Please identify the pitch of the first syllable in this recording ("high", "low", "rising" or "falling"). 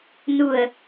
low